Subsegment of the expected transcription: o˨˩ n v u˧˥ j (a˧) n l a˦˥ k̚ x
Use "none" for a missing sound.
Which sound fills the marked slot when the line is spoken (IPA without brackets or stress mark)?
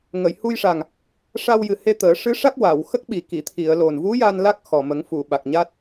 a˧